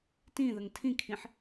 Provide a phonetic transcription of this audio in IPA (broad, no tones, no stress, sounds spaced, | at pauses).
t ĩ ð ə ŋ tʰ ĩ kʰ ĩ ħ